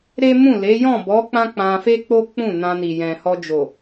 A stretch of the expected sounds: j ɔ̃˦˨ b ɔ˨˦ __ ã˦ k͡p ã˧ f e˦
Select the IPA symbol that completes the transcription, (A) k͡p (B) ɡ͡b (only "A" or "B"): A